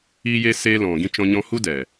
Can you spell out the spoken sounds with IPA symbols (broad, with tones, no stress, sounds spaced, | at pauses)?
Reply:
iː˧ j e˧ s e˧ l ɔ̃˨ ɡ ĩ˧ t͡ʃ ɔ̃˧ ɲ ɔ̃˧ h u˦ d ɛ˨